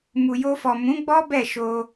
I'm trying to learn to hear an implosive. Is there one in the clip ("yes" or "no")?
no